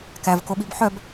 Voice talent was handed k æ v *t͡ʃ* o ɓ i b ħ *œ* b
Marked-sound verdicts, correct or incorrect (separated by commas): incorrect, correct